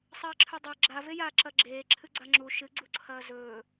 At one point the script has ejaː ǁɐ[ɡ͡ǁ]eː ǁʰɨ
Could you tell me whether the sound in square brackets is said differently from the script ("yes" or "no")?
no